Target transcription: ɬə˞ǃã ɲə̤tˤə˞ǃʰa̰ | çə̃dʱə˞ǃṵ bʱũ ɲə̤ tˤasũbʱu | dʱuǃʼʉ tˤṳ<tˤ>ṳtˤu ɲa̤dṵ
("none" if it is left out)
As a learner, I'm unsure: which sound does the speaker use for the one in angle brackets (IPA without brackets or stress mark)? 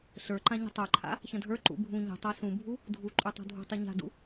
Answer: dʱ